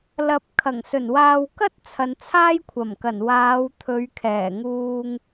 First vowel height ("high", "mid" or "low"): low